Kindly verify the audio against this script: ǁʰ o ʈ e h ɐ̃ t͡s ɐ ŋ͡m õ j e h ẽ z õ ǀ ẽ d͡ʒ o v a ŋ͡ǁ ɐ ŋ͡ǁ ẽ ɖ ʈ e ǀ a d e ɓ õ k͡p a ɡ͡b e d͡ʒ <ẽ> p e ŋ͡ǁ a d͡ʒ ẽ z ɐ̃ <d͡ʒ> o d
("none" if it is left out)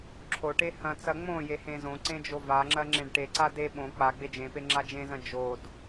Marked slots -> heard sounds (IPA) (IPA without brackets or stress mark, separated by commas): ẽ, d͡ʒ